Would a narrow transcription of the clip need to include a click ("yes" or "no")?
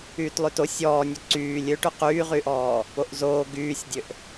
yes